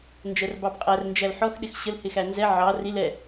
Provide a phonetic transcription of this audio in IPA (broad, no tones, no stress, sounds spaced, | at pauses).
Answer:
n d͡ʒ ɜ r b ɑ b qʼ æ r n d͡ʒ æ l ħ ɔ x ɗ ɪ x ɕ ə l h ɪ x æ n z ɛ ʕ ɑ r i l ɛ